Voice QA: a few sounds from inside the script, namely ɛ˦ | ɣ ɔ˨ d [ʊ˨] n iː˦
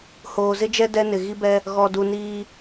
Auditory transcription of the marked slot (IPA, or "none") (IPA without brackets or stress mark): u˨